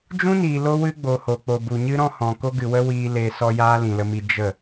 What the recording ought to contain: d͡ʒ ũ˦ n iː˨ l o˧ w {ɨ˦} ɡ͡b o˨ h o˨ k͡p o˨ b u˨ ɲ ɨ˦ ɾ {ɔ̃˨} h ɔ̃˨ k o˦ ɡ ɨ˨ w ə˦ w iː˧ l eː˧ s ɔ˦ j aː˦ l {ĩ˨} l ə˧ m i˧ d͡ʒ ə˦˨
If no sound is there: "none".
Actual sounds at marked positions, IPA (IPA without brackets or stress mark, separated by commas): ɨ˦, ɔ̃˦, ĩ˨